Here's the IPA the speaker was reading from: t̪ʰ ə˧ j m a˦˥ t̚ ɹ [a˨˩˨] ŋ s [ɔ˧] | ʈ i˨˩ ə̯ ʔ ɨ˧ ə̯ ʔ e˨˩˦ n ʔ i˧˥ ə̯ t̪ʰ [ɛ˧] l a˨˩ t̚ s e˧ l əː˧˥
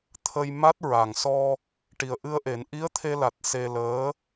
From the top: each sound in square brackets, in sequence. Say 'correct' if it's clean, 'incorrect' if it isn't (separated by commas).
incorrect, correct, incorrect